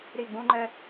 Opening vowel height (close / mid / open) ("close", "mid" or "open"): close